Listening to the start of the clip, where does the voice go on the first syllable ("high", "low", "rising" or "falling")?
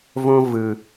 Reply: high